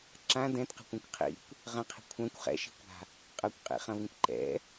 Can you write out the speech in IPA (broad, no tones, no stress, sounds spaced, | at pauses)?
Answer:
ǁ ã d ɛ̃ t q ɛ̤ kʷ ɛ̃ kʷ qʰ ḭ kʷ | ʁ ə̃ qʰ i̤ kʷʰ ã kʷ χ ɛ̰ ʃ i̤ kʷ a̤ | qʼ ɐ kʷ qʼ ḭ χ ɐ̃ v ĩ kʷ ǃ ɛ̰